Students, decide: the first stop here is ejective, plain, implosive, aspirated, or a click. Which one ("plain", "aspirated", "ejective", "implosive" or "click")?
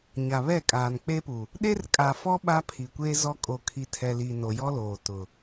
ejective